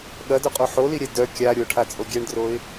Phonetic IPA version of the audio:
ɠ ɐ d œ qʼ o ħ o l i ɾʲ ɛ d œ kʲ a ɾʲ o ʈʰ a t͡sʼ o ɡʲ ɛ ɳ d r o ɪ̯

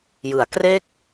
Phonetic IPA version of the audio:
j ɯ˩˦ a̯ k r e˥˩ k̚

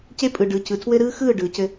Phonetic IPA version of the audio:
c e˦ pʼ ɯ˨ ɖ ɯ˨ c ɯ˨ tʰ w ɘ˦ ɾ ɯː˦ x ɯː˦˨ ɖ ɯː˨ c ɘ˦

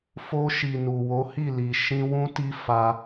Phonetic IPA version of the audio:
f o˧ ʃ i˨ n u˨ w o˨˦ h i˦˨ l i˨ ʃ ĩ˧ w ũ˦ t i˦ f a˦

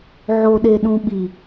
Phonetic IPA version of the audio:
ʕ o ɗ e ɗ ũ ɓ i

